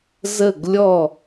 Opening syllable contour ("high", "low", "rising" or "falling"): falling